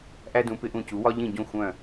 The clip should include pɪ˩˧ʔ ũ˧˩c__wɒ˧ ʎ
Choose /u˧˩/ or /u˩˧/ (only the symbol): u˩˧